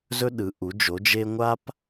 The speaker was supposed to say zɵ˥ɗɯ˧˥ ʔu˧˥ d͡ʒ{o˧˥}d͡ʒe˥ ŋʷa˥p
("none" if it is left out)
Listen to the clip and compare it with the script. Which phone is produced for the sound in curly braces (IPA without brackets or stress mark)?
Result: o˧˥